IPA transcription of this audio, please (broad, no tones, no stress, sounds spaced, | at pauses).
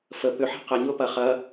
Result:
f ə p ʏ ħ a̤ q ɐ ɲ ʊː p ɐ χ ɐ